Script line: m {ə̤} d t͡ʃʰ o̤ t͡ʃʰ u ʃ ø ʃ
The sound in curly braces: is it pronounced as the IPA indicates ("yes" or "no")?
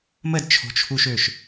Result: no